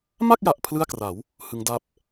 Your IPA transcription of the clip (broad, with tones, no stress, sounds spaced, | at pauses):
m a˥˩ k̚ j a˨˩ ʔ pʰ l ɯ˥˩ a̯ k r a˩˦ w | h ɯ˦˥ ŋ d a˥˩ p̚